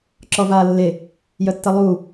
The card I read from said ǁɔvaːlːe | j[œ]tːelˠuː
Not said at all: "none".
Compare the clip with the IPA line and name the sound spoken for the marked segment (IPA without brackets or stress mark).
œ